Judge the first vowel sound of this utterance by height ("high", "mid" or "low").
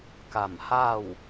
low